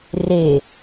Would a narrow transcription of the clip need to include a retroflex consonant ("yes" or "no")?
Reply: no